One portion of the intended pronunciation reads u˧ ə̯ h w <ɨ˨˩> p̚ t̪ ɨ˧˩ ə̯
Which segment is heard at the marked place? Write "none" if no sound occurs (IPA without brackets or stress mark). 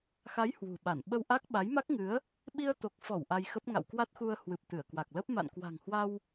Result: ɨ˨˩